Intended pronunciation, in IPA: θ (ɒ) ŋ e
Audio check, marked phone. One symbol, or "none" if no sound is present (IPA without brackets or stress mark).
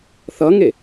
ʌ